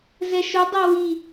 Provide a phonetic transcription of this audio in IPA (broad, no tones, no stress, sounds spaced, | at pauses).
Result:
z ɛ ʃ ʊ dˤ ʌ w i